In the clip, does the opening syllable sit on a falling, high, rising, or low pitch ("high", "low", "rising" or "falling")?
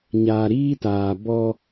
low